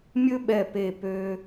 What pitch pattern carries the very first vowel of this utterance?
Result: high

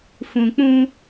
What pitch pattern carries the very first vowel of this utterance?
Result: low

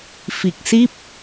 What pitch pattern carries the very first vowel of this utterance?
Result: low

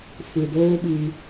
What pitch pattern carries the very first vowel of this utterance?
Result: low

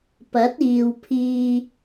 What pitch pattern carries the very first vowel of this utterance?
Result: rising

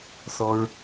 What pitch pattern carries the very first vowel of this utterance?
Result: high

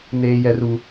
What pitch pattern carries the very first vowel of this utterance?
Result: high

